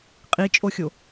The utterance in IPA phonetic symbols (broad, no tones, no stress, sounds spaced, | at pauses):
qʼ i t͡ʃʼ o xʲ o